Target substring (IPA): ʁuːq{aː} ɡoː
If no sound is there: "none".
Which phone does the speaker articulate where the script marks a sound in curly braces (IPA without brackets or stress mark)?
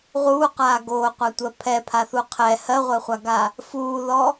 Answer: aː